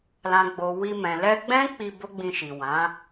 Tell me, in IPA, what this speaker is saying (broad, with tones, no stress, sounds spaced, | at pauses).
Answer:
l ã˨ ɡ͡b o˨ w i˧ m ɛ̃˨ l ɛ˧ ɡ͡b ɛ̃˦ k͡p i˧ b o˦ ɡ͡b ĩ˧ ʃ i˨ w ã˨˦